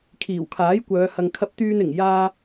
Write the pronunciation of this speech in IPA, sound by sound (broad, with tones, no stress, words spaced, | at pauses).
kʰiː˨˩wkʰaː˨˥jkʷœː˨˧ hɐ˨ŋkʰɐ˧p̚t̪yː˧n ɪ˨˩ŋ jaː˧